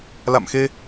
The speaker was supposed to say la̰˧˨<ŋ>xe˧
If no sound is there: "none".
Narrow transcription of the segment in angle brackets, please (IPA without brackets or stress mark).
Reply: m